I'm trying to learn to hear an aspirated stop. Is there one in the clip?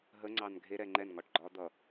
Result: no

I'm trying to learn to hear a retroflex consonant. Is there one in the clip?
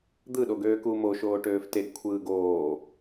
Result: yes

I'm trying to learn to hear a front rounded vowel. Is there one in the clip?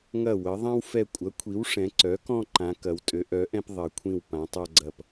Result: yes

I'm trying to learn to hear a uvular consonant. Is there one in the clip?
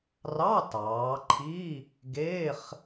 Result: yes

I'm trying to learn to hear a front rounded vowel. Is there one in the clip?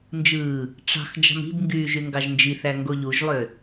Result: yes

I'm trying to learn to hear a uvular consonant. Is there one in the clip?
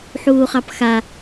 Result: yes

